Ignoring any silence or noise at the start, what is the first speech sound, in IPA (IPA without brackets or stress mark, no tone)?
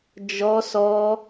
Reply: d͡ʒ